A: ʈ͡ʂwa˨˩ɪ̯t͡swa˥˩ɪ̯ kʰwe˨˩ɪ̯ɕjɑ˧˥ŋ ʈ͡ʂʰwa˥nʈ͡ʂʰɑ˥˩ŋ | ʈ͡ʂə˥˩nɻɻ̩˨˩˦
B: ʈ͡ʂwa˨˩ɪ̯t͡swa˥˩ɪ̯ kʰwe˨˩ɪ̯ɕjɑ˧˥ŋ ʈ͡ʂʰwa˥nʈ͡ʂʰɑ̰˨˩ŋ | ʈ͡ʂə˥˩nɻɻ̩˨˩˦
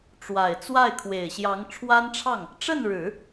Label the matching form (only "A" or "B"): A